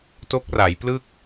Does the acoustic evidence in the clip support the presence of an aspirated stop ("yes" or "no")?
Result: no